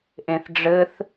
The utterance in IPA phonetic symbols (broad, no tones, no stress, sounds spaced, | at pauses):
ʔ ẽ θ ɖ͡ʐ ɘ θ